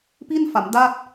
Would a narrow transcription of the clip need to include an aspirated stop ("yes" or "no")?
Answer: no